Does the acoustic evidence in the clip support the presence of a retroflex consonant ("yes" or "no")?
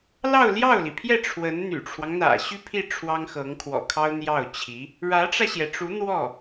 yes